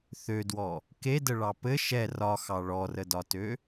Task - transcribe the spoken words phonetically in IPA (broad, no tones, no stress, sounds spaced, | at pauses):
θ ø d w ɔ | k e d ə ɭ ɑ p ɘ ʃ ɛ r ɒ x ɑ ɭ ɔ r ə d ɒ t ø